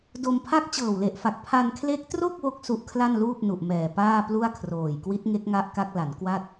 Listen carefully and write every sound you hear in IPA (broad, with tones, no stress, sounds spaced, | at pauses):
d o˧ m pʰ a˥˩ k̚ t͡ɕ ɤː˨˩ w l e˨˩ ʔ f a˨˩ k̚ pʰ a˧ n kʰ l e˦˥ k̚ t r o˥˩ k̚ w o˥˩ k̚ s u˦˥ ʔ kʰ l a˥˩ n l uː˥˩ p̚ n u˨˩ ʔ m ɛː˨˩ p aː˥˩ p l u˥˩ a̯ kʰ r oː˨˩ j k w i˦˥ t̚ ŋ e˦˥ k̚ ŋ a˦˥ ʔ k a˦˥ k̚ l a˩˦ n k w a˥˩ t̚